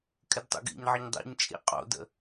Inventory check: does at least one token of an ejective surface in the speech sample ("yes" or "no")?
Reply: yes